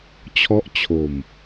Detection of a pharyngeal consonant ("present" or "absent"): absent